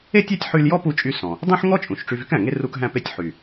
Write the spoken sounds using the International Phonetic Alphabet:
e˥tʲæ˥tʲħy˧l jɔ˥pu˧t͡ʃʼy˧sɔ̃˩ | dˤũ˥ħŋɔ˥t͡ʃʼũ˩ʃ ʈ͡ʂy˧vy˥kæ̃˩ŋe˥ ru˧k ɦæ̃˧pe˧tʲ ħy˩

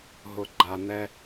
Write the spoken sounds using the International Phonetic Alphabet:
ɦʊ˨ ɡ͡ǃa˨n̪ɛ˦

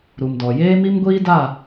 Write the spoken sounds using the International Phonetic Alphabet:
ɾu˨mdɔ˨ jeː˦mi˦mɡʷiː˦ da˦˨

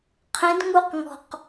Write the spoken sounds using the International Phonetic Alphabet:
qʰẽdŋuqŋɔ̤q

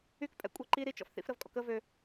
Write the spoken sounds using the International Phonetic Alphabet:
ykpʼɛ̰kʷʼɛ ǃi ɾit͡ʃɔ̰f θḭfɾəvkʼɔ̰kə vø

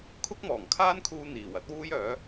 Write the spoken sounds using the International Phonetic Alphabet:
kʰʊ˥k̚mɔː˨˩ŋkʰaː˥nkʰuː˧ n̪iː˨˩wɐ˥t̚wuː˥jœː˨˥

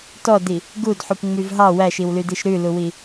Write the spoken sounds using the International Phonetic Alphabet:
tɔdi | ɡudħupŋ͡myv ɦɑ wæʃiwlydiʃ ɾʉluwi

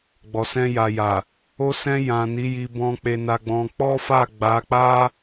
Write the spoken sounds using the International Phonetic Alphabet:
ɡ͡bɔ˨sɛ̃˧ja˨ja˨ | o˧sɛ̃˧jã˨ ni˨˦ji˧ bɔ̃˧ k͡pe˧na˧ɡ͡bɔ̃˧ k͡pɔ˦fa˦˨ɡ͡ba˨˦ k͡pa˦

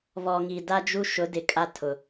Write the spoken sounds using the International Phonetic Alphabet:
vɔ˨ ŋi˨ da˦d͡ʒu˦ ʃʊ˨˦dɪ˨ kʼa˦tʰʊ˨

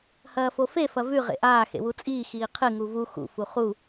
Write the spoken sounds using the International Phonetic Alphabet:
hɐːfofe fɐvʉ ʁḛʔaː xḛwut͡sʼiː xiːqʰɨ ŋuvu xṵ fuχu

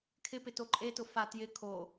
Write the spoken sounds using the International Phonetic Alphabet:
kʰɪpɪ toǃʼetʊ fa tjɪ kʰo

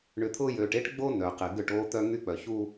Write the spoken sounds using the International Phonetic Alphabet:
ɳʏ˨t̪ʰʊː˦jøː˨ʈ e˦ʈɡ͡bo˦ nœ˨qɪ˨ ɡʏ˦˨ʈoː˦t̪œ˦ ŋy˦k͡pœ˨çu˦

